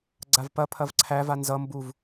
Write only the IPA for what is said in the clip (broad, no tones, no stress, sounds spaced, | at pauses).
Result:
ɡ͡ǀ a v p ɐ pʰ ɐ v ǀʰ æ v a n z ʌ m b u v